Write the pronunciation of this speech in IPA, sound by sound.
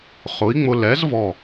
χʊ˨˥i̯ŋ͡mʊ˧ lɛ˨˥z vɔ˧˩

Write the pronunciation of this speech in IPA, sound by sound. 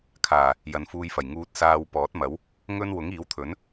kʰaː˨˩ | jɐ˨˧nfuː˧jfɐ˨˩j ŋuː˨t̚saː˧w pɔː˨˥t̚mɐ˨˥w | ŋɵ˥n wʊ˨˥ŋiː˨˥wt̪ʰɵ˨˥n

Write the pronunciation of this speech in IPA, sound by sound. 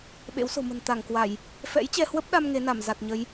ɓḛ˧˥wso̤˨˩mə̤˨˩n t̪a˧˩ŋkwa˧˩˨j | fɛ̰˧˥jt͡ɕɛ˧hwə˦˥p̚ɗa˧m ŋe˨˦na˧˩mza˨˩t̚ɲə˨˦j

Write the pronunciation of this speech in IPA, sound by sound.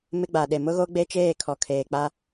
mɪ˦ɡ͡ba˨ɗe˨ mʊ˦ɣo˦ɡ͡be˦ t͡ʃeː˦˨kʰɔ˨kʰeː˨k͡pa˦

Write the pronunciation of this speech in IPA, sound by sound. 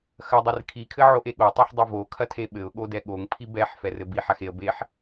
xɐdˤɘr kʰikʰɘ ʕoʔeɠotˤaħ dˤivokʰɐtʰe ɓɘʊ̯ɠodɛ ɠoŋpʰi bɛħ fɛrɘbi ħaxeə̯ beħ

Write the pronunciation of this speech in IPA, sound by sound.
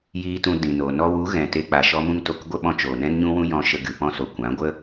jiː˧tũ˧ dĩ˨no˨ nɔ˧wu˨˦ ɣɛ̃˨te˧k͡pa˨ ʃɔ˦mũ˦ŋto˧k ɡʷə˦ɓɔ̃˧t͡ʃoː˨ nɛ̃˦nɲũ˦wũ˦ jɔ̃˧ʃə˧ ɡɨ˨pɔ̃˦so˨ kʷã˨˦ɡʷə˦

